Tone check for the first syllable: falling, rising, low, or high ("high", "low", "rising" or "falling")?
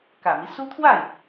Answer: low